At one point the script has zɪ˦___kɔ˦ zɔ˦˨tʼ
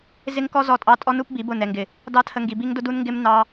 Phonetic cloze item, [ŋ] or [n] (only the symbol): ŋ